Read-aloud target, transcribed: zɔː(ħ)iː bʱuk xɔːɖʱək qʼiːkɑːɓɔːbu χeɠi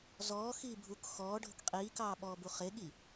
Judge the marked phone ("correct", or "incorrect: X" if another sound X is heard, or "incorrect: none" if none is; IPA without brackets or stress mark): incorrect: x